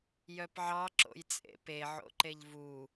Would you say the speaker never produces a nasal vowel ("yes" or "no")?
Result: yes